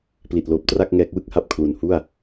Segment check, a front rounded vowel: absent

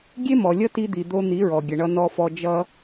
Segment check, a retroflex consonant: present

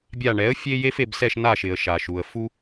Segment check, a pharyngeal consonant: absent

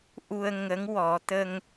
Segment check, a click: absent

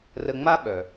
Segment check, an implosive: present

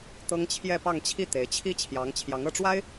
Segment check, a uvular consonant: absent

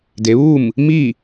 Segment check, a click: absent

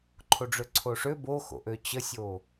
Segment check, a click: present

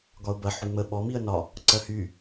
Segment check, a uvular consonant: absent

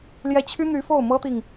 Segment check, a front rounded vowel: present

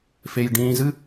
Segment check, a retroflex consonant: present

